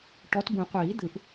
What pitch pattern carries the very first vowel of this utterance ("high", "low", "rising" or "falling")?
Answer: rising